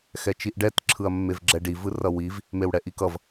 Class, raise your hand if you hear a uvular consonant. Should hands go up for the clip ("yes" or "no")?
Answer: no